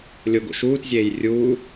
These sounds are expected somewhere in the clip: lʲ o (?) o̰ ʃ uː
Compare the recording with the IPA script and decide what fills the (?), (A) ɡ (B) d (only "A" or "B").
A